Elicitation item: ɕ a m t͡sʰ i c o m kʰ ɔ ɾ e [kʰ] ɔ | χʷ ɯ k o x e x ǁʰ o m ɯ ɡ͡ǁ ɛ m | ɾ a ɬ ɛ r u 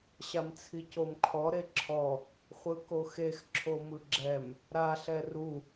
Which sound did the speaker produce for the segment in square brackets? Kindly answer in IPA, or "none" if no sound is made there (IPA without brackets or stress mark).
ǁʰ